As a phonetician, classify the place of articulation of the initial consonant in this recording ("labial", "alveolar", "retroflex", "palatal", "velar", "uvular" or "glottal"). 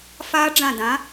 labial